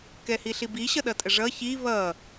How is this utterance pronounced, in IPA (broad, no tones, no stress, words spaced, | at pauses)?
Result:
kɛhiɬibi ɕʌɗʌtʼəʐʌ çi βʌ